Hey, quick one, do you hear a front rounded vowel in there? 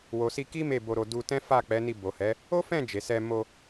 no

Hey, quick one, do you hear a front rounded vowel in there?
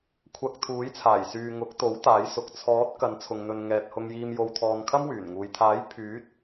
yes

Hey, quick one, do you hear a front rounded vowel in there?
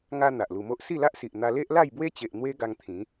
no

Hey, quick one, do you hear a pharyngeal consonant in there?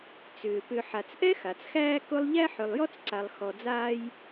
yes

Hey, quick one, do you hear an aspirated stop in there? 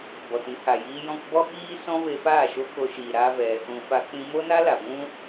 no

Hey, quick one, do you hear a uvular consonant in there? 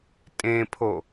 no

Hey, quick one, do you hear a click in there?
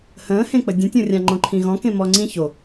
yes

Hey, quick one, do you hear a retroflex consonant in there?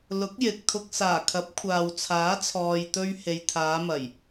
no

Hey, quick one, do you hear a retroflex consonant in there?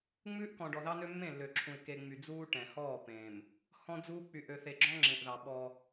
yes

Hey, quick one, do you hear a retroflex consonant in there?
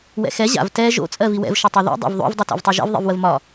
no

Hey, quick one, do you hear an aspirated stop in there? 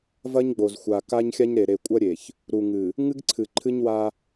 yes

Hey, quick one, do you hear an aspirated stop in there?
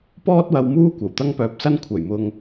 yes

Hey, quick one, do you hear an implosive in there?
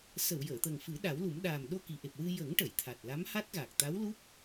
yes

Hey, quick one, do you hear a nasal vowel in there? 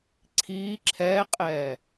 no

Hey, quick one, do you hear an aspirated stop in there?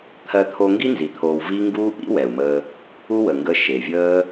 yes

